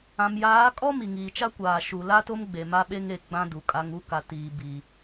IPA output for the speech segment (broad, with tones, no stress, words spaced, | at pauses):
ã˨mjaː˨˦kʼɔ˦ mi˨ŋiː˨t͡ʃa˦kʷaː˨ ʃu˨la˦to˦m ɡ͡be˨ma˦ɓe˦ŋ e˨ ɡ͡bã˦du˨kʼa˦ŋu˦ ka˨ tiː˨bi˨